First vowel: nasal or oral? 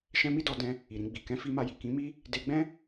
nasal